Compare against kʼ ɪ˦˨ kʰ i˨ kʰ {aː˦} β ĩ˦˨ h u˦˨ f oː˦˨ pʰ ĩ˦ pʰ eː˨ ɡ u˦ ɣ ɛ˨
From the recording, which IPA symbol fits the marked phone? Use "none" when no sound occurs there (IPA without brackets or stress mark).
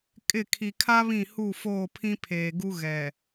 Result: a˦